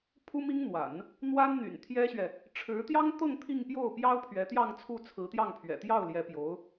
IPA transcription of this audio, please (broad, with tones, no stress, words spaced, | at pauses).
pʰu˥mi˥ŋn̪wa̰˨˩˦n | n̪wa˥nn̪y̰˨˩nt̪ʰjɛ˥ɕɥɛ˨ | ʈ͡ʂʰɻ̩˧˥t̪jɑ˥ŋt̪ɤ˥˧ŋ t̪ʰi˥˧ŋpjo˥˩ʊ̯pjɑ˥ʊ̯ pʰɥɛ˧˥t̪jɑ˥˧ŋt͡sʰu˥˩ t͡sʰɹ̩˧˥t̪jɑ˥˩ŋpʰɥɛ̰˨˩ t̪jɑ˥˩ʊ̯ljɛ˧˥ pjo˧˥ʊ̯